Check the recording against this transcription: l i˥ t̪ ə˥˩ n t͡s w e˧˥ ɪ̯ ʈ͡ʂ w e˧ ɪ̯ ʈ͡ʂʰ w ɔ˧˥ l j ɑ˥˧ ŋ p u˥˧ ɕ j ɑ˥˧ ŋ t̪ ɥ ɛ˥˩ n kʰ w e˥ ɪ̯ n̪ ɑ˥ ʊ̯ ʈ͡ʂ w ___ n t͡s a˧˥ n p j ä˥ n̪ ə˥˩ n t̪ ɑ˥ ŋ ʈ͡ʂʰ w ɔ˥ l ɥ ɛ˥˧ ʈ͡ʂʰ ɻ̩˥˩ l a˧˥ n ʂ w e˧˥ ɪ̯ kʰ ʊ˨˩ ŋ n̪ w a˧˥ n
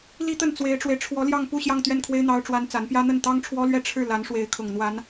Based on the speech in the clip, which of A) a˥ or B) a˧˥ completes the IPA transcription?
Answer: A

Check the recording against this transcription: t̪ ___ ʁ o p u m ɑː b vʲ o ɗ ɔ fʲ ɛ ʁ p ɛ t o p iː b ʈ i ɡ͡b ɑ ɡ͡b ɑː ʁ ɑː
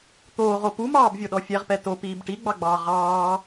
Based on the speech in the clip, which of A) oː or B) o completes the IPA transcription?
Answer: A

